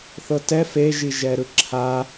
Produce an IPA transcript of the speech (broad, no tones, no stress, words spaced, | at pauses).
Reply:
θɤtɛ feʒiʒɛ ɾɯǁʰa